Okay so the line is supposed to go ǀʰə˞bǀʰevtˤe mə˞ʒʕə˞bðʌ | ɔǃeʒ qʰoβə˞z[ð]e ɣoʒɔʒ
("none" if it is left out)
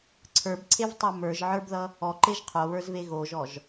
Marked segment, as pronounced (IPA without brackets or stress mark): v